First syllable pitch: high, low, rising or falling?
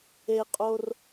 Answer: high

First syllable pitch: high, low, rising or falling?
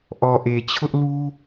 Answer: low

